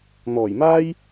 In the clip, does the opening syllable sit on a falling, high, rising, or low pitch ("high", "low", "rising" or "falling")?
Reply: low